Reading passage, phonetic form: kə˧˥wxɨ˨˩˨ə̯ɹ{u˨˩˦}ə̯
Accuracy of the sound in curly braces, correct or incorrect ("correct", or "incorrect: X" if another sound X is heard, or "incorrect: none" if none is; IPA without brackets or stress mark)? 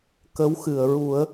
correct